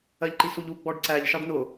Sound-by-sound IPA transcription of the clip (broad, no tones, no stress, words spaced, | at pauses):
ɜʎǃisuʎu ɡ͡bɔɖǀæʎ ʃɑɖnʊ